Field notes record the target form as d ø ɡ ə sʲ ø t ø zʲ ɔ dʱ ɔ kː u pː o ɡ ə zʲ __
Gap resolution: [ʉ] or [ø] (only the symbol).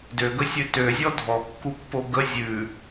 ʉ